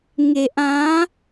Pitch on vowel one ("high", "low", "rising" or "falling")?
low